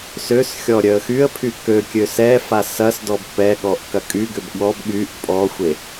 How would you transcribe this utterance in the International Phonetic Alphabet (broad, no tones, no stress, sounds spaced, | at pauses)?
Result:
s ø s xʲ ɔ ɾʲ œ ə̯ x y ə̯ pʰ y k ø kʲ ø s ɛ f a s ɐ s d ɔ b p ɛ ɠ ɔ ʔ k ɐ kʼ y ɡ ʏ b ɠ ɔ b ɠ y ʔ pʼ ɔ xʷ e